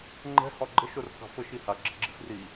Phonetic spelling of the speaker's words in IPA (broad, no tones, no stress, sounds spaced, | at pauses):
ŋ͡ǃ ɛ̤ h ɒ ɡ͡ǃ ə ʃ o r k ɑ̤ f ə ʃ i h a ɡ͡ǁ ə ɡ͡ǁ i̤ f r i